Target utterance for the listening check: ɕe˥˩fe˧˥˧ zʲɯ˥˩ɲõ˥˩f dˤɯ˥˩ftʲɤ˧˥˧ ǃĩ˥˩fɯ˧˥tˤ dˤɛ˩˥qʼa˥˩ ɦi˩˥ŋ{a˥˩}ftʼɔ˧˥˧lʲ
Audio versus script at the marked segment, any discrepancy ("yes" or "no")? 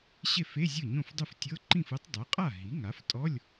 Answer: yes